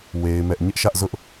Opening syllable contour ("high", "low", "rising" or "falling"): high